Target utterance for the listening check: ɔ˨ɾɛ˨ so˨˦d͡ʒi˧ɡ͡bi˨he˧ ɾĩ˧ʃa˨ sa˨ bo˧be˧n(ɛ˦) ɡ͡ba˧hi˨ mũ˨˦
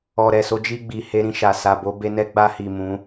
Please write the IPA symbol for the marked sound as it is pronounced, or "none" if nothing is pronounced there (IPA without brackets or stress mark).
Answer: ɛ˦